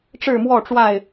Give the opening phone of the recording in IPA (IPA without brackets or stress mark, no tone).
ʈ͡ʂ